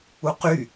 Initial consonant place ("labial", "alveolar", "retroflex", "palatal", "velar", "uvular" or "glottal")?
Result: uvular